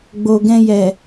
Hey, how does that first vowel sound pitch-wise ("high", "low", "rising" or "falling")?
low